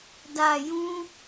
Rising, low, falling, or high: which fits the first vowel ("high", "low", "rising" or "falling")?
low